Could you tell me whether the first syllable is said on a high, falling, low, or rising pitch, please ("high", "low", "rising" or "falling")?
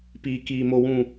low